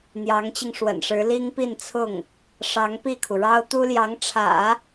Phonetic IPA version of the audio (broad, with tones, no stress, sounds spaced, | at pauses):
n̪ j ɑ˧˥ ŋ t͡ɕ i˧ ŋ ʂ w ə̰˨˩ n ʂ ɻ̩˧˥ l i˥ ŋ p i˥˧ n t͡sʰ ʊ˥˩ ŋ | ʂ ɑ˧˥ ŋ p i˥˩ kʰ u˩ ɻ ɑ˥ ʊ̯ t̪ u˥ l j ɑ˧˥ ŋ ʈ͡ʂʰ ä̰˨˩˦